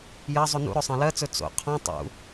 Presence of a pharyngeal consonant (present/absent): absent